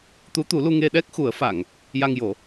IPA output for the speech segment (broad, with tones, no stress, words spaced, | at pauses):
t̪u˧˥t̪u˨˩˦lu˧ ŋe˧ɗɛ˦˥k̚xu˨˩˦ə̯fa˨˩˨ŋ | ja˧ŋjo˨˩˦